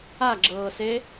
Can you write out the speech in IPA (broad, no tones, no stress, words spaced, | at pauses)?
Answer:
aɡ͡ǁɤːse